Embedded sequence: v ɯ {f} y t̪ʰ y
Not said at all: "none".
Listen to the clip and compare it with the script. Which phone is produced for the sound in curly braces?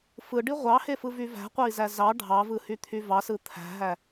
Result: h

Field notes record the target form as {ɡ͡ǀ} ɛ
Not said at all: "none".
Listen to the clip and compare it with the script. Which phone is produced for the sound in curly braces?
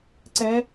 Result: ǀ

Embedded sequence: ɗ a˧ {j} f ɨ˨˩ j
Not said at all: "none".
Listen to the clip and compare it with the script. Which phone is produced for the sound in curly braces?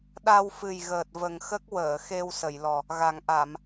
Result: w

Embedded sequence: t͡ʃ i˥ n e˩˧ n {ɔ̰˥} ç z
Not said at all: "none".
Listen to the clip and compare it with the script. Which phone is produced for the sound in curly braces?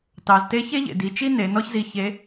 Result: ɔ˥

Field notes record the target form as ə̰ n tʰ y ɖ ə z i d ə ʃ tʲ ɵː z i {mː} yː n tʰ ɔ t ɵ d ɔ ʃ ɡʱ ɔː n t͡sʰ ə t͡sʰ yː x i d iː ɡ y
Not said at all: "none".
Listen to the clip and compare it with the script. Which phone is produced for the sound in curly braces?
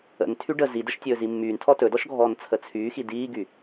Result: mː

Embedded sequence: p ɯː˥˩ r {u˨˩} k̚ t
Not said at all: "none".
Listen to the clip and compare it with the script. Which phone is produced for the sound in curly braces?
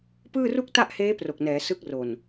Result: u˥˩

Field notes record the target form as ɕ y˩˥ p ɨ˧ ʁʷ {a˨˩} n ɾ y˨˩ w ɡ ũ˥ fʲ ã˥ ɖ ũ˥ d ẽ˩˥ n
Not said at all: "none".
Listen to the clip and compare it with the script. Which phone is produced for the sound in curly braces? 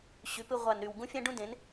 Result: a˨˩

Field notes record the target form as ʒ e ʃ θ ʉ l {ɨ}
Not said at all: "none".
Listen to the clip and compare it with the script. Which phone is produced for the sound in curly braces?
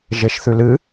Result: ɨ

